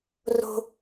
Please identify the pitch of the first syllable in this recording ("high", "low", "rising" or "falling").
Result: high